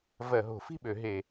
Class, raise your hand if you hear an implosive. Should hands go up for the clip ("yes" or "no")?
yes